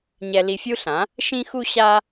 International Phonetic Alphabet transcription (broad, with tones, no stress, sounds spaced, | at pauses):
ɲ ɛ˧ l i˧ fʲ u˥ ɬ ã˩˥ | ʃ ĩ˥ x u˥ ɕ a˥